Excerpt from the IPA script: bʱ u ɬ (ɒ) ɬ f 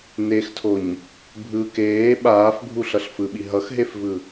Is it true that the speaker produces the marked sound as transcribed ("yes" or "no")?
no